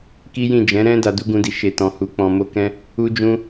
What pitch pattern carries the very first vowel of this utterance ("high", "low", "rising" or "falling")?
high